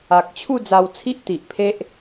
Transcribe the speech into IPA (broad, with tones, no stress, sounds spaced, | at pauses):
a˨ k̚ t͡ɕʰ u˥˧ d͡z a˧ w t͡sʰ i˦ ʔ t̪ i˨ ʔ pʰ e˦ ʔ